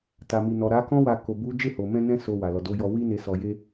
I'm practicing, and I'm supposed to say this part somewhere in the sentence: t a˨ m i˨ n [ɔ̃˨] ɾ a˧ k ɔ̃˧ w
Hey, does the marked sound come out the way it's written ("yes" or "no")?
no